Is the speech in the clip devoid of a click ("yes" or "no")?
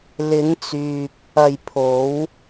yes